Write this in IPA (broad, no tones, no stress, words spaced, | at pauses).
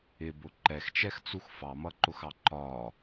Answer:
ɪbʊ ǃɛxt͡ʃɛxt͡sux fɑmʌǃʊxɑ ǃɒ